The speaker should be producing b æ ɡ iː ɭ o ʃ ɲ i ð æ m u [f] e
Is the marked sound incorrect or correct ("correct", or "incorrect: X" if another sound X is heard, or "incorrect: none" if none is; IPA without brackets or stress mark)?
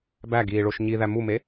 incorrect: m